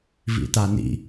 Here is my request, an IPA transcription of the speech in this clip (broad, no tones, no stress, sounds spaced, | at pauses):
v ḭ t a n ḭ